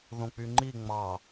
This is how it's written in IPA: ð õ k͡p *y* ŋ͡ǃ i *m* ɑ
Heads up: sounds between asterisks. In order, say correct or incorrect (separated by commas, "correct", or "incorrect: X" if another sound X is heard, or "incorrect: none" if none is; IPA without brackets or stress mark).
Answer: correct, incorrect: ŋ͡m